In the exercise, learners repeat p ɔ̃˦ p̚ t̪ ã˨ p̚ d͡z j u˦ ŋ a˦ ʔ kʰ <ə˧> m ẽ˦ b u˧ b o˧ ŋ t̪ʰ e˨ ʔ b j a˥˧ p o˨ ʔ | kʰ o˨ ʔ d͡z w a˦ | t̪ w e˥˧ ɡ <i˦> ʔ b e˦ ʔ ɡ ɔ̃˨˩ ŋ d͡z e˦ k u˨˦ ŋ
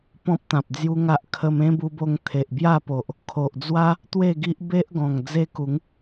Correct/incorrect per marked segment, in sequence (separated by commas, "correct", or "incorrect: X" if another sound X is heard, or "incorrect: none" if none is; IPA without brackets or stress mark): correct, correct